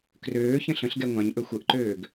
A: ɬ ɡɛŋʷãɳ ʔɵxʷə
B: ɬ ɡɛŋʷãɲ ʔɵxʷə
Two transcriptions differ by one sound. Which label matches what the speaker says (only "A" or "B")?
B